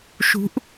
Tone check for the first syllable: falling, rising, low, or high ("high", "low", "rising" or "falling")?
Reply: rising